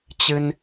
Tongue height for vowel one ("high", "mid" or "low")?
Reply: high